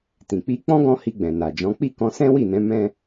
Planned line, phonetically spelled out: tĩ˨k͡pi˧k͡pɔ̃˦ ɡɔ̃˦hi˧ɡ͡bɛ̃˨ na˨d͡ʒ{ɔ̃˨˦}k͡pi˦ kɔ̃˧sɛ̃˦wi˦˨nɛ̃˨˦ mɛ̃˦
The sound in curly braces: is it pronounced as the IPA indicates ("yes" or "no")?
yes